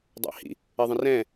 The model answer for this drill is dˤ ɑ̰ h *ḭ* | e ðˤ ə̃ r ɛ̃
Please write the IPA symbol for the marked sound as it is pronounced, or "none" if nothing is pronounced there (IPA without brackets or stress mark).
ḭ